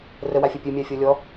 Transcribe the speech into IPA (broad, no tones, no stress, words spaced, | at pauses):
rəwafʲɔ pʲɨmʲafʲɔ lʲɔ